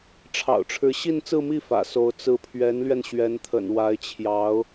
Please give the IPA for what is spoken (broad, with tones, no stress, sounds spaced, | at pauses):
ʈ͡ʂʰ ɑ̰˨˩ ʊ̯ ʈ͡ʂʰ ɻ̩˧˥ ɕ i˥˧ n t͡s ɹ̩˥˧ m i˥˩ f ä̰˨˩ s o˧˥ ʊ̯ t͡s ɹ̩˧˥ pʰ ɥ ɛ˧˥ n l ɥ ɛ˧ n ɕ ɥ ɛ˧˥ n t̪ʰ ə̰˨˩ n w a˧˥ ɪ̯ t͡ɕʰ j ɑ˧˥ ʊ̯